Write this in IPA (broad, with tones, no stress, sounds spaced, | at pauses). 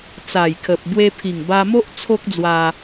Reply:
t͡s a˨˩ j kʰ ə˨ p̚ b w e˧ pʰ i˨˩ ŋ b a˧ m o˦ ʔ t͡sʰ o˦ k̚ d͡z w a˧